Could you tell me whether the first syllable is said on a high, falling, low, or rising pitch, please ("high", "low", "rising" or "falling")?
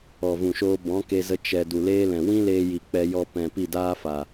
low